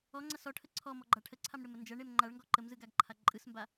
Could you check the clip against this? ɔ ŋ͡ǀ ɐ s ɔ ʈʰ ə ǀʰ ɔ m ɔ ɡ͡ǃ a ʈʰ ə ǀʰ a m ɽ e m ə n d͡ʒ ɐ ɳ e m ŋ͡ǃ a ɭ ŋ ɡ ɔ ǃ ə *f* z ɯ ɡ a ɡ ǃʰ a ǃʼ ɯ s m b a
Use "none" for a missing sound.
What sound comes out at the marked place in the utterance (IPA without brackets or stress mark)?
m